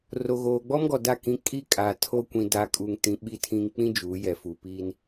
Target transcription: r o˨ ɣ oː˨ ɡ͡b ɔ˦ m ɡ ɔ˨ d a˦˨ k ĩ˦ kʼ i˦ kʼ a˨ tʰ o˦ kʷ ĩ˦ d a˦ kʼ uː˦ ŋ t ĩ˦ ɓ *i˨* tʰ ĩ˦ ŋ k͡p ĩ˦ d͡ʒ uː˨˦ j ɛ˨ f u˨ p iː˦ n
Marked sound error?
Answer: yes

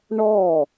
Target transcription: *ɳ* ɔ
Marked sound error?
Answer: no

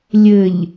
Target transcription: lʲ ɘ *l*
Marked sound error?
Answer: yes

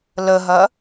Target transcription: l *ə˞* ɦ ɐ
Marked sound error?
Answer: yes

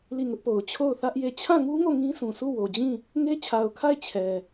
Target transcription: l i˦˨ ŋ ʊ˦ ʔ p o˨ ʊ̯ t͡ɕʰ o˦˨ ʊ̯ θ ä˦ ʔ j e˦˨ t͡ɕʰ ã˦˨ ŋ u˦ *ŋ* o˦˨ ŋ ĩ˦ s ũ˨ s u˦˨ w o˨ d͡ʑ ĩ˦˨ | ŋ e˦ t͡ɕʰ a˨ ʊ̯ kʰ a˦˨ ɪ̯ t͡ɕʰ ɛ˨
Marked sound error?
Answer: no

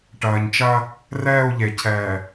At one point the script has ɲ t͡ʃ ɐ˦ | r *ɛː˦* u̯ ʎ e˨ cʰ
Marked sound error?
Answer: yes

